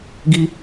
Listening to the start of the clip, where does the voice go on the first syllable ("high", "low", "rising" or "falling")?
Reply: high